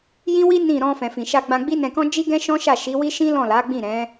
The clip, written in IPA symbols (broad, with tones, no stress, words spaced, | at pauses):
jĩ˦wi˦ nĩ˦˨ ɾɔ̃˧fɛ̃˨fĩ˨ʃa˧ ɡ͡bã˧ɡ͡bi˦nɛ̃˧kɔ̃˦ d͡ʒi˦ɡɛ̃˦ʃɔ̃˦ʃa˦˨ ʃi˨˦wi˦ ʃĩ˦lɔ̃˦˨la˨˦ ɡ͡bĩ˦˨ɾɛ̃˨˦